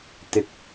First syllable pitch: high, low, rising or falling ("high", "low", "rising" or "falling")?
low